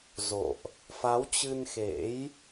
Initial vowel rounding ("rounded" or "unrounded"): rounded